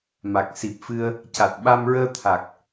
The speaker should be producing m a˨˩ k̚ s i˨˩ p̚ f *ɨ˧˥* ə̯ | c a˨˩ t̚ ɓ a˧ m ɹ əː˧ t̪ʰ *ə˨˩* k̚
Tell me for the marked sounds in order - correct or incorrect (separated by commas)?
incorrect, incorrect